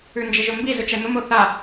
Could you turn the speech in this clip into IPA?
ʉnd͡ʒɪʒɵmbi zɵt͡ʃɛn̪ʊm oθa

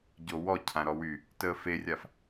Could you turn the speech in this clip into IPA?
ɟowɔ cʰãɾɔwy | təːferʲaf

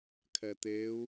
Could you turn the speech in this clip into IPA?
kʰɛt̪eu̯

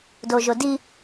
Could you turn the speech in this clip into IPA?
doʒodi

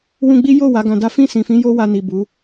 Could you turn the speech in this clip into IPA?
wũ˧ɡ͡bi˦ jo˦˨ wa˨˦ɡã˧da˦ fĩ˦˨sĩ˨fĩ˨˦ jo˦wa˧ni˨ bu˨˦

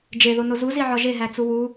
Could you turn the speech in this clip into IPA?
d͡ʒeðono zuziʕɒ ʒeɦæt͡su wu

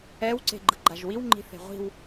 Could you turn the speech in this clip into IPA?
ɛw ǀe̤ɡ͡ǃɯɡ͡ǃaʒwiw ŋ͡ǃi̤θe̤ʁʷi̤w

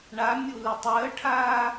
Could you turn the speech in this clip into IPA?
ɳamʲulə tˤəːʈʰaː

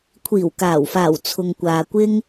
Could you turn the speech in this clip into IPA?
kʷʰiː˨˩wkaː˨˩wfaː˨˩w t͡sʰʊ˨ŋkʷaː˨kʷɪ˥ŋ

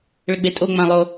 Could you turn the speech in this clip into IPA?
ɭəɡ͡betʼo ŋ͡mãlˠo

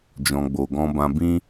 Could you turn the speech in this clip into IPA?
d͡ʒɔ̃˨ɡ͡bo˨ɡɔ̃˧ bã˧bĩ˦

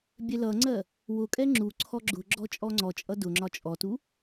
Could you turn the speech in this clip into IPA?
bʲɛlʌŋ͡ǀɜ | wʊkʼɛ ŋ͡ǁuǀʰɔ ɡ͡ǁʊ ɡ͡ǁɔt͡ʃʼɔŋ͡ǀɔt͡ʃʼʌ dʊŋ͡ǁɒ t͡ʃʼɔtu

